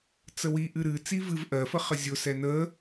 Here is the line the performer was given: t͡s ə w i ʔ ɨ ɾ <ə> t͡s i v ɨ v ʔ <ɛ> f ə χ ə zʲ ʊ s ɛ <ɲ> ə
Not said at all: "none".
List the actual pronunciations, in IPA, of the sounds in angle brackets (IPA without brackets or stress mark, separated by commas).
ɨ, ɜ, n